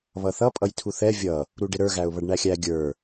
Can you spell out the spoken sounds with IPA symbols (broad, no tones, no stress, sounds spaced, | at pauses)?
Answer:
β ʌ θ ʌ pʼ ʌ j tʰ u θ ɛ vʲ ʌ | ɾ u ɖ ɪ ɾ ə˞ ɣ æ ʊ̯ β ʌ ɖ ɳ æ xʲ æ ɡʲ ə˞